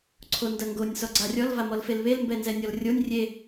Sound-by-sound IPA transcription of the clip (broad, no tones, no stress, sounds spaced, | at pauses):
ǀʰ o n d ɐ ŋ ɡ o nʲ s ɔ ɡ͡ǀ a rʲ ɔ l v a m ɔ l f e l β e l m b ɛ n z ɛ nʲ ɔ l rʲ o nʲ rʲ e